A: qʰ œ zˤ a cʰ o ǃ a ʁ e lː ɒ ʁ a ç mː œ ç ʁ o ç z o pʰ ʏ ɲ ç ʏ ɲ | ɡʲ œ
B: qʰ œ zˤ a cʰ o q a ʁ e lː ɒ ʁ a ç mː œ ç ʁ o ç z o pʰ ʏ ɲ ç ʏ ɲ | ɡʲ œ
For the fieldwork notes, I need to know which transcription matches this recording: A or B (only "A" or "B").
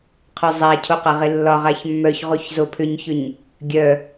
B